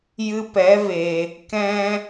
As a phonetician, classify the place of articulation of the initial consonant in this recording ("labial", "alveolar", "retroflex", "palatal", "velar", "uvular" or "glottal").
palatal